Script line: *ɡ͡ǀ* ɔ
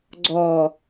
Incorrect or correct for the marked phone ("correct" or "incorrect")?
correct